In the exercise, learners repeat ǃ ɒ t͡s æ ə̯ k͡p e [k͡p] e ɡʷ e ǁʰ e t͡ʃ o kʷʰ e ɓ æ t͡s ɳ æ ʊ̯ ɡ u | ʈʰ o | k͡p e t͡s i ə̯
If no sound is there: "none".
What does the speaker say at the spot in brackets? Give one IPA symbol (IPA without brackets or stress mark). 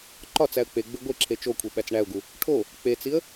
ɡ͡b